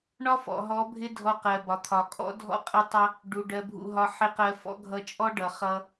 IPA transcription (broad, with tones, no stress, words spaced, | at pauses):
ɳɒ˦fɔ̰˨ɦɔ˨˦ bʱɪ˦dʱɔ˧ qɜ˨bɒ˨t̪ʰɒ˨kʼɔ̰˦ dʱɔ̰˦ qʼɪ˧tˤʌ˧ | ɖu˨ ɖɜ˧bʱṵ˧ɦɒ˧ ħɪ˦˨qɜ˧fɔ̰˦ ɡʱʌ˧t͡ʃʼɔ˦ɖʌ˨ χʌ˧